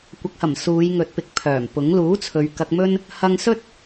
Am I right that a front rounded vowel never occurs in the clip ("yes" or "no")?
no